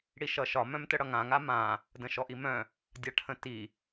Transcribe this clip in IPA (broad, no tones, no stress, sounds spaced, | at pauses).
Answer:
ɽ i ʃ ʌ ʃ ɒ m œ̃ m t ə ɽ ʌ ŋ ã ŋ a m ã | d ə̃ ʃ ɔ ʔ i m œ̃ | dʲ a ʈʰ ə̃ t i